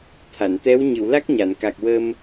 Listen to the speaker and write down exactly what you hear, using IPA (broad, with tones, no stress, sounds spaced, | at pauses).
t̪ʰ a˨˩˨ n t̪ ɛ˧˥ w ɲ ɨ˨˩˨ w l a˦˥ k̚ ɲ a˨˩˨ n k a˨˩ k̚ w ə˧ m